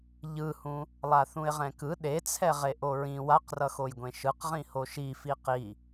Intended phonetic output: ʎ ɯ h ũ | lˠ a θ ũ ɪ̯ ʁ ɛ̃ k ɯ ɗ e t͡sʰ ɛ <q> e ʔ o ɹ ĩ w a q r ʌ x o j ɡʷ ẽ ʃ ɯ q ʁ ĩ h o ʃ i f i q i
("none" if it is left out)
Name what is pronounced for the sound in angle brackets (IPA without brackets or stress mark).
ʁ